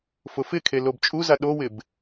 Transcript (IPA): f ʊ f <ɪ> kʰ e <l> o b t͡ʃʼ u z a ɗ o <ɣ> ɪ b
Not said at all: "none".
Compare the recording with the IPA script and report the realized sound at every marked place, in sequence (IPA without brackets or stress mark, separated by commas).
ɪ, l, w